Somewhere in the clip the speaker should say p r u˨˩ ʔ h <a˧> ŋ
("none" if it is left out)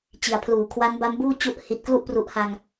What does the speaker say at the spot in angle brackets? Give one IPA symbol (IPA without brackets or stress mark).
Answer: a˧